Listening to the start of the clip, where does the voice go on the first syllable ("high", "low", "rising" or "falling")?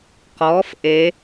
rising